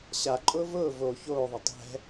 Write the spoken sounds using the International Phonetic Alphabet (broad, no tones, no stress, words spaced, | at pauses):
ɕaǃʼʊː vʊː vo çoːðˤə tˤɛ̤